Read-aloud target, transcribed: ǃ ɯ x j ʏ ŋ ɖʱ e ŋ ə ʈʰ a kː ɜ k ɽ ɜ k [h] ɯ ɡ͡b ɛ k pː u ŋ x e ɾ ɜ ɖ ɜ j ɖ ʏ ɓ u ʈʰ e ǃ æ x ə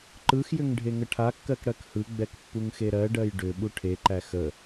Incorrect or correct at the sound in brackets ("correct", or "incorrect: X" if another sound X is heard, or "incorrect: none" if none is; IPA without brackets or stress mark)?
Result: correct